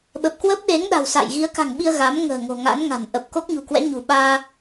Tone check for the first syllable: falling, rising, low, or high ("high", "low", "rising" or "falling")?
low